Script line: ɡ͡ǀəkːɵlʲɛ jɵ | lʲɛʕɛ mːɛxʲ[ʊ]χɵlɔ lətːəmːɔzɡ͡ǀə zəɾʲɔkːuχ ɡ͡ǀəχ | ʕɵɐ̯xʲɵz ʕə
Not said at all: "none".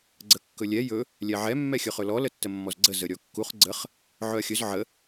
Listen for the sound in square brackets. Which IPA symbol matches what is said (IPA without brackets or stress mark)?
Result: ɵ